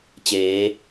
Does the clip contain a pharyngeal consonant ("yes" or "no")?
no